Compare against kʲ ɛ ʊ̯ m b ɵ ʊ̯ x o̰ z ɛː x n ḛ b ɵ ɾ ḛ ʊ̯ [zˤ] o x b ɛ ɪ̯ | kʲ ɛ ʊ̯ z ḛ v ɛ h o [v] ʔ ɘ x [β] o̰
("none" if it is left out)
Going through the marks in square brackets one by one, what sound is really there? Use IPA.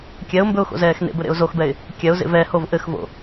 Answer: z, v, v

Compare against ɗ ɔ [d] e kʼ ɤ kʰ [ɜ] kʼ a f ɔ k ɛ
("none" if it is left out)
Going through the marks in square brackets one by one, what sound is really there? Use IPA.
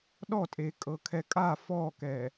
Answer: tʼ, ɛ

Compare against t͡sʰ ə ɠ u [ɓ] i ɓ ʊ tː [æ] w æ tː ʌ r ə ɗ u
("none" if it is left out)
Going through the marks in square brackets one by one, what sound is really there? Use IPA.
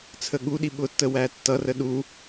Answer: ɗ, ə

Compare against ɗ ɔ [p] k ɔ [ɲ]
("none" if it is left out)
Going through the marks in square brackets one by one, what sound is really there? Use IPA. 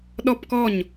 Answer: p, ɲ

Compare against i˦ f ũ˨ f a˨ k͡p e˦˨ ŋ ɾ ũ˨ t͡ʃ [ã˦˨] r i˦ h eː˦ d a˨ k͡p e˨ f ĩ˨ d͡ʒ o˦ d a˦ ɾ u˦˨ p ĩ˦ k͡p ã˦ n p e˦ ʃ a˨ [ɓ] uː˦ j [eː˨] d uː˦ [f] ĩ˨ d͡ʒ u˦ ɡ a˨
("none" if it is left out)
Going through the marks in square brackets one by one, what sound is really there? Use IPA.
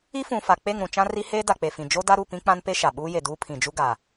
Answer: ã˦, ɓ, e˨, pʰ

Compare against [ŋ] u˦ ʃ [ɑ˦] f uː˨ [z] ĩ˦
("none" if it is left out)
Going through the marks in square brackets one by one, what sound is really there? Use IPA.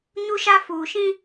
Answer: ɲ, a˦, ʃ

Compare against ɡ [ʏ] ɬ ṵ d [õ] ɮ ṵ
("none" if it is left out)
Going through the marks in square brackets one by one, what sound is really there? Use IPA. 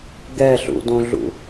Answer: ɛ, õ

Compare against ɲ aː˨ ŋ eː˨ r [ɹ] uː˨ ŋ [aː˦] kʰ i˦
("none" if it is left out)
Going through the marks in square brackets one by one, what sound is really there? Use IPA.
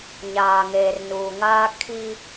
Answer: n, aː˦

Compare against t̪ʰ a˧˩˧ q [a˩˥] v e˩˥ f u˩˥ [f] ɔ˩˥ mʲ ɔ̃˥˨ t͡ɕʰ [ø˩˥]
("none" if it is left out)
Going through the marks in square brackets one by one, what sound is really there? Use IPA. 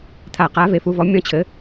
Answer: a˩˥, v, ɘ˩˥

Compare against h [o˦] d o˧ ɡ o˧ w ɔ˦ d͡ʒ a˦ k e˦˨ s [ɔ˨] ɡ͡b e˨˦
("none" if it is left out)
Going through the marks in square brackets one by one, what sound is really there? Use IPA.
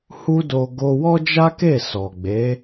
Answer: u˦, ɔ˨

